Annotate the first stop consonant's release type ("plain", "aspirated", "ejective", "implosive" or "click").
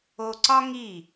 click